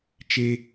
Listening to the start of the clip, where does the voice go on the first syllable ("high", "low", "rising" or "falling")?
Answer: high